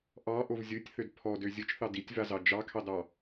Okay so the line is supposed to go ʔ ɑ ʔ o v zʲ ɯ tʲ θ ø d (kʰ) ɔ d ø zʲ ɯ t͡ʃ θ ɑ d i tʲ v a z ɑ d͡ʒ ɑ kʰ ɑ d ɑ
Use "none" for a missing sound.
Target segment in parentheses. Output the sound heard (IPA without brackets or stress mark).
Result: pʰ